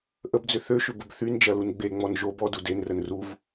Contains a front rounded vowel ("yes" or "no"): yes